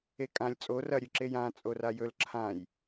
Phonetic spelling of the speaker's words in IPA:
ekʼãlʲ t͡sʼo rɐ ɾʲʉǁejã t͡sʼorajɵl ǁʰãj

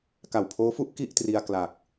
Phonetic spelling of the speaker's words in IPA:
ka˨˩wpʰoː˦˥fu˦˥ʔ ki˥˩ʔtri˧a̯ kla˨˩k̚

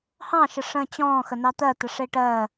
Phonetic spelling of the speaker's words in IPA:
hɑ̃ʃə ʂə̃ːt͡ɕɔ̃ːxə nɑt̪ɜ t̪əʂeʈɜː

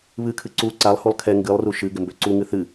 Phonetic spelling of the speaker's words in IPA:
βɨkʰɨ ǀu ǀalˠhulˠ kʰɛ ŋɡɨlˠru ʃɨ ɡɪmbøǀuŋɨ θɨ

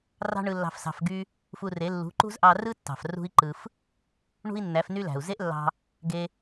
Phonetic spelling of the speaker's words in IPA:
rɑ̤˦ɳɯ˧lːɑ̤˧f sɑ̤˧fɡy˦ | fu˧re˨˦ lːṳ˨˦ǃṳ˦zʔɑ˧ rɯ˦tːɑ̤˨f rṳ˦i̯ǃɯ˧f | ɳṳ˦i̯nːæ˨˦fny˦læ̤˨u̯ ze˦ʔlːɑ̤˧ | ɡe˧

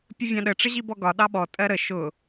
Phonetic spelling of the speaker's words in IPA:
pʲəvʲɑ̃ɗə ʈ͡ʂəʑibɔɡɒ ɗɑɓɔ tʼɜɾə ʃʊ

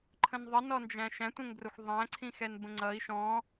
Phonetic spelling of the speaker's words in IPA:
ǃʰə̃nðˤənɔnd͡ʒæ̃ ʃæ̃tʷɛ̃ŋbrʊxʷ ðˤæ̃ǀʰĩxɛn bə̃ŋ͡ǀʌi̯ ʃɔ̃

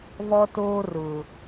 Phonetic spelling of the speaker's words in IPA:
vɔ˦toː˦ rʊ˨

